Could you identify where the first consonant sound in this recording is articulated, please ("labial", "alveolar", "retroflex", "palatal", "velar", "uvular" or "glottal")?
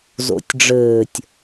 alveolar